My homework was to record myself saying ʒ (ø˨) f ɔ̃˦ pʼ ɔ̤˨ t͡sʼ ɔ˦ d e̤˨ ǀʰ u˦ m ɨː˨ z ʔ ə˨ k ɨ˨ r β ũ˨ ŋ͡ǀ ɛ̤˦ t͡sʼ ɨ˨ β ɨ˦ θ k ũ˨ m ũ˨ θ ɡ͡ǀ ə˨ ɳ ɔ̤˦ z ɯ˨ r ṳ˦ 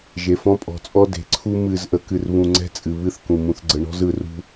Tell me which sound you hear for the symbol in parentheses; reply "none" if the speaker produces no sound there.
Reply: e˨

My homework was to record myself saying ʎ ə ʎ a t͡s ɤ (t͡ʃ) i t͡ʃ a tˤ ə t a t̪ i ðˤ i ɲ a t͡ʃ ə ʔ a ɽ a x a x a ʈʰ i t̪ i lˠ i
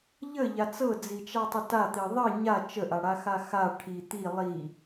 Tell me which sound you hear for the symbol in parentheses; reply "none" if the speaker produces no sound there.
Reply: d͡z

